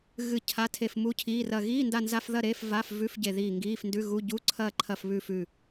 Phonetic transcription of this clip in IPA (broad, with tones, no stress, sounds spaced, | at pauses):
ɣ ɨ˦˨ cʰ a˧˥˧ tʰ e˦˨ f m u˧˥˧ cʰ iː˧˥˧ r ɐ˦˨ ɣ iː˧˥˧ n d a˦˨ n z a˧˥˧ f ð ɐ˦˨ ɾ e˧˥˧ f v a˧˥˧ f v ʉ˧˥˧ f ɟ e˦˨ ð iː˦˨ ŋ ɡ iː˧˥˧ f n d ʉ˧˥˧ ɣ u˧˥˧ ɟ u˧˥˧ ǀʰ ɐː˦˨ ǃʰ ɐ˦˨ f β ʉ˦˨ f ʉ˦˨